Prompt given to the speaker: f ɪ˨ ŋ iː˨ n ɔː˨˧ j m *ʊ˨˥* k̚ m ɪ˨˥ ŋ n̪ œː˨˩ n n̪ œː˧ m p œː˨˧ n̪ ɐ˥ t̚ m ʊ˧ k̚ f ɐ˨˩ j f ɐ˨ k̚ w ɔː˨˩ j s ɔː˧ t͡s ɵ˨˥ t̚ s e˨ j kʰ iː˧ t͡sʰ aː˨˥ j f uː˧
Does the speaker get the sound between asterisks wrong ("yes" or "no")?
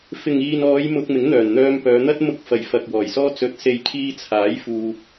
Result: yes